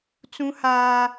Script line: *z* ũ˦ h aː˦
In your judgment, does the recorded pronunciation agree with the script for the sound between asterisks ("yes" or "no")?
no